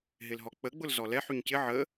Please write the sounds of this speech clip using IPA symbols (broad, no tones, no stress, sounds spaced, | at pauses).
ɦ ɪ l ɦ ɔ k͡p ə ɡ͡b ʊ l z ɔ l ɛ ħ y ɲ c ɪ ʕ ə